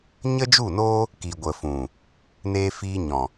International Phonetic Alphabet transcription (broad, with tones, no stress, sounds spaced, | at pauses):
ɲ ə˦ d͡ʒ u˦˨ n oː˦ | k i˨ ɡʷ ə˨ f ũ˨ | n eː˧ f iː˧ ɲ ɔ̃˨